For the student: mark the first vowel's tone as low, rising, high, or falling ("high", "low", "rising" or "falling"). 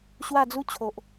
falling